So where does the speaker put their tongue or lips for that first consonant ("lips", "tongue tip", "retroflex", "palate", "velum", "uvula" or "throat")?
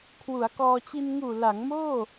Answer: velum